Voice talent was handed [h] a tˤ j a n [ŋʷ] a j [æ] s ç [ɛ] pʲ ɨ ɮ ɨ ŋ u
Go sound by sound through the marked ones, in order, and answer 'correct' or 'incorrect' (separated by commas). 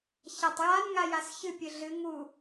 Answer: incorrect, incorrect, incorrect, incorrect